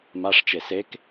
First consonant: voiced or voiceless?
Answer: voiced